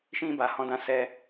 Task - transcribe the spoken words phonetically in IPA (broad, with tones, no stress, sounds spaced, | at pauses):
ʃ ĩ˧ b a˨ h ɔ̃˧ d ã˧ s ɛ˧